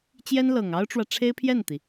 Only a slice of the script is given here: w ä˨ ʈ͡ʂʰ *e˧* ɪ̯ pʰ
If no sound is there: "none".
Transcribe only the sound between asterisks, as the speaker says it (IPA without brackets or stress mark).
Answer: e˥